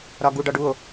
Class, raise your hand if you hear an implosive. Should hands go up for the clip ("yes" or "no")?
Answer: no